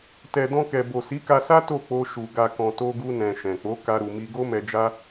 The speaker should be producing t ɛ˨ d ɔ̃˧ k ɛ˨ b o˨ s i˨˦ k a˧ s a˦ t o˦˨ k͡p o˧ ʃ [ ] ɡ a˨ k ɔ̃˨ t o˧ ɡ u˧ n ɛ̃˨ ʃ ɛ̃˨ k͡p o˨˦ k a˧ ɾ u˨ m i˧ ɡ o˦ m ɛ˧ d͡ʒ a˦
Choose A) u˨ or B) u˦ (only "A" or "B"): A